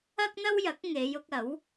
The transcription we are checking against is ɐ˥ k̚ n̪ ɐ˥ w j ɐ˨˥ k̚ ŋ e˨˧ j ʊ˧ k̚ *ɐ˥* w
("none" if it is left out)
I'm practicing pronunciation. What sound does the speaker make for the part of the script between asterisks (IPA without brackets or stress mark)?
ɐ˨˥